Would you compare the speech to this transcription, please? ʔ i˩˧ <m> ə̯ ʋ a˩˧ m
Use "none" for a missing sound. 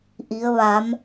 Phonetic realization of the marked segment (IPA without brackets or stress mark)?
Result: none